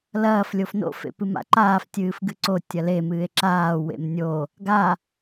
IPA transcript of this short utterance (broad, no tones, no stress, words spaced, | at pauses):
lɐːf lʲofno̰ fḛpɨma̰ǃaːf tʲɨːfɡɨǀo tʲɐle mɨːe̯ǁaː wḛmnʲo | ɡa